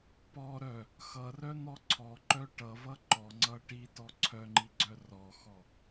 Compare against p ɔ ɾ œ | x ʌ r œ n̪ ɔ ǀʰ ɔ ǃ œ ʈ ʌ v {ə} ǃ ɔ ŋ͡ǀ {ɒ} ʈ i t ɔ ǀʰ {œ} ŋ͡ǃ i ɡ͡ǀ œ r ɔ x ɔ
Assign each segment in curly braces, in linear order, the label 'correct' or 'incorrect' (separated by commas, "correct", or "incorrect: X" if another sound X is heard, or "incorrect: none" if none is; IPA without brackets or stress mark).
incorrect: ʌ, incorrect: ʌ, correct